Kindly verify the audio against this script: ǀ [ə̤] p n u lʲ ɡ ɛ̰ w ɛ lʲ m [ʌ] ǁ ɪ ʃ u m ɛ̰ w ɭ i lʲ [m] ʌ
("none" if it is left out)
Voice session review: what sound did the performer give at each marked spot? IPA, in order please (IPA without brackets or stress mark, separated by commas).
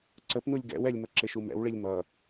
ə, ʌ, m